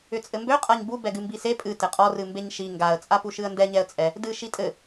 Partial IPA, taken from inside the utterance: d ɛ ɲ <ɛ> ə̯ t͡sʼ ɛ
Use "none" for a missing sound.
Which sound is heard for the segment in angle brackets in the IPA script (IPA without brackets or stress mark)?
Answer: ɛ